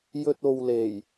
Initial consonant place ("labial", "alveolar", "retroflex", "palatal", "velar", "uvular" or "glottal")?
palatal